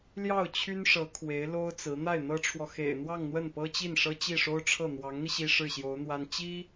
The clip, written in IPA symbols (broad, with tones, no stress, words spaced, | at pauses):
ljɑ˥˩ʊ̯t͡ɕʰy˥nʂɤ˧˥ kʰwe˧˥ɪ̯lo˥ʊ̯t͡sɹ̩˧˥ n̪a˥˩ɪ̯n̪ɤ˥ʈ͡ʂʰwɔ˨ xḛ˨˩ɪ̯n̪wɑ˥˧ŋ n̪wə˥˩npɤ˥t͡ɕi˥˩n ʂɤ˥t͡ɕi˥˩ʂo˥ʊ̯ʈ͡ʂʰɤ˥˩ n̪wɑ˧˥ŋn̪i˧ ɕi˥ʂɻ̩˥˩ɕjo˧˥ʊ̯n̪wa˥n t͡ɕi˥